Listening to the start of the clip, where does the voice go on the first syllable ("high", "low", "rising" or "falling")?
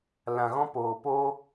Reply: low